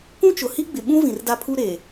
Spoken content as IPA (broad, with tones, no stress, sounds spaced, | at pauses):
k ũ˦ t͡ʃ ʊ˨ h i˦ ɡ͡b ɪ˨ ɓ ũ˦ v ĩ˨ r d a˦ pʰ u˦ ɾ eː˨